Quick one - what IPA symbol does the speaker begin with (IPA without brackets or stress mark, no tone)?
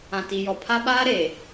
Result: ã